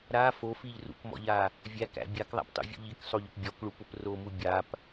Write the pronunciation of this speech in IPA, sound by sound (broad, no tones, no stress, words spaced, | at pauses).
ɾa fofiʎ rṵkmɔ̰ʎa | vʲækæ̰ bʲakðˤæ̰ptˤṵvʲṵ ʎiksˤoʎʊp bʲɔkɭupʊp romu bʲap